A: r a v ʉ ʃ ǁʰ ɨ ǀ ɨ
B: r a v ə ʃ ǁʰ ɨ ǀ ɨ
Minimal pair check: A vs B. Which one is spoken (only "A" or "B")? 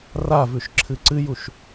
A